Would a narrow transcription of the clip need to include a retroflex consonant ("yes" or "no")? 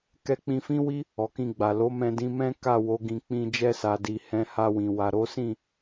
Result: no